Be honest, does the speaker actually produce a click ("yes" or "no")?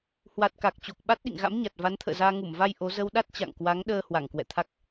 no